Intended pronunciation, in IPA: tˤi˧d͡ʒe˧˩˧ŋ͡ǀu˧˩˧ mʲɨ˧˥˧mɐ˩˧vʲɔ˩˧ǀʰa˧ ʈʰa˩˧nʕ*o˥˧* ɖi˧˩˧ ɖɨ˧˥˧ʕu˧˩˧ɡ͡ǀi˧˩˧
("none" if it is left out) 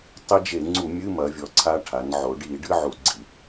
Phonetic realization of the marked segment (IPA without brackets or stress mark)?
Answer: o˩˧